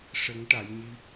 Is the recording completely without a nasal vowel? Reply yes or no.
yes